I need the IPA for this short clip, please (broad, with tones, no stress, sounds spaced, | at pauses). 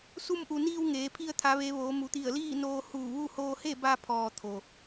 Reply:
s u˧ m ʔ u˩ n iː˧ w ŋ eː˩˧ pʰ i˧ ə̯ t̪ʰ a˩˧ ʋ e˩˧ ʋ oː˩˧ m u˩˧ t̪ i˧˩ ə̯ l iː˥˨ n oː˧ h uː˧˩ ʋ u˥˨ h oː˧ h e˥˨ b a˧ pʰ ɔː˩ t̪ʰ o˩